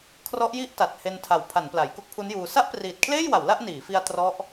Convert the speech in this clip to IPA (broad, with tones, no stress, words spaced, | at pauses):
kʰrɔ˦˥ʔji˥˩ʔta˨˩t̚ he˧ntʰa˨˩w pʰa˩˦n pla˩˦jko˥˩k̚pʰu˦˥njuː˧ sa˥˩ʔpriː˨˩t̚kʰleː˥˩jwa˩˦w la˥˩ʔniː˩˦fi˧a̯ trɔ˦˥ʔ